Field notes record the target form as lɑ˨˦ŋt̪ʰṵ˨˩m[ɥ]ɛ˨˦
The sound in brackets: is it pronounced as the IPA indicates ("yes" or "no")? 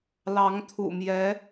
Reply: no